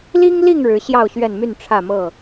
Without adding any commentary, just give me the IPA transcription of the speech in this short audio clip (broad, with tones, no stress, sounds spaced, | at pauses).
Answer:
l i˦ ŋ l i˥˨ ŋ ɻ ɻ̩˨˦ ɕ j ɑ˥˨ ʊ̯ ɕ ɥ ɛ˥˨ n m y˥˨ n ʈ͡ʂʰ ä˥˨ m ɤ˥˨